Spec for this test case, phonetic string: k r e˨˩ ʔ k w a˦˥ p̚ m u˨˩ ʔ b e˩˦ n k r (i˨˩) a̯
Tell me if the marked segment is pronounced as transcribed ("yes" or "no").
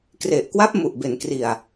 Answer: yes